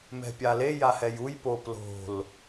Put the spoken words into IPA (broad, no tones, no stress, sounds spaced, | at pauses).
m ɛ̤ pʲ a l e j a h ɛ j u j p o p l o̤ l